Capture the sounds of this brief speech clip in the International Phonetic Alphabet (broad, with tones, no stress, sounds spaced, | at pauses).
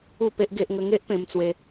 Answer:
u˥˧ p e˦ ʔ ɡ e˦ ʔ ŋ ə˦ ŋ e˦ ʔ p ẽ˧ m t͡s w e˧